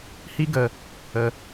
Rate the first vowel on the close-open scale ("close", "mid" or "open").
close